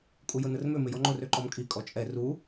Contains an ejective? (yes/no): yes